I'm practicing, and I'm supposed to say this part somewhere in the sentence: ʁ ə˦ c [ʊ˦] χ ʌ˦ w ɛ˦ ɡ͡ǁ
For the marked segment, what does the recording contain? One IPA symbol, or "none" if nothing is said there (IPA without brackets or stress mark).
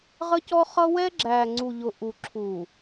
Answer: ɔ˦